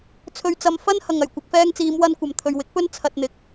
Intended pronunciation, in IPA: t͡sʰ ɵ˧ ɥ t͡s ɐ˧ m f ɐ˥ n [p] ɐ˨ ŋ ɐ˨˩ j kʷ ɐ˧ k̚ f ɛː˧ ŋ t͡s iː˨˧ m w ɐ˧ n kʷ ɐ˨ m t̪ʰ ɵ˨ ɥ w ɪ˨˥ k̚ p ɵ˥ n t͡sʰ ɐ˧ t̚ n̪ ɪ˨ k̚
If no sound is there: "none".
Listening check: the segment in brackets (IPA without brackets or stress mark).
h